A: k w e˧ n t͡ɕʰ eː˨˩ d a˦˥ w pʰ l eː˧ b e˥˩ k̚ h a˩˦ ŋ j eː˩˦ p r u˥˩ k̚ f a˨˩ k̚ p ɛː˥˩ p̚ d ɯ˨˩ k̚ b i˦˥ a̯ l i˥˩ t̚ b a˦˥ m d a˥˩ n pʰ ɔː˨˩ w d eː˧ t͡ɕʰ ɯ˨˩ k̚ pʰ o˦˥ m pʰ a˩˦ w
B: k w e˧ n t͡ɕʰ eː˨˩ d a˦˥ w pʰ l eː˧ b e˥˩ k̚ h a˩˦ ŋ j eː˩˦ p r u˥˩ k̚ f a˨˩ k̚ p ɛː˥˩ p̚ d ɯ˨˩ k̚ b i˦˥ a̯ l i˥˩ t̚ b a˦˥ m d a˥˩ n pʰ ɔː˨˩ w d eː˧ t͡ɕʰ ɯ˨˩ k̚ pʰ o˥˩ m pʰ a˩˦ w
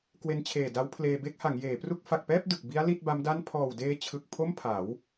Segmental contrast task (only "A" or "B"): B